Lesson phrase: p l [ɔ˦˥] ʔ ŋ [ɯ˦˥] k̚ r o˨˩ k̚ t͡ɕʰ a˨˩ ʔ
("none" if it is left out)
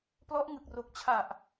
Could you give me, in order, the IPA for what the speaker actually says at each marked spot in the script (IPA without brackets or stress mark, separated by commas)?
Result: ɔ˦˥, ɯ˨˩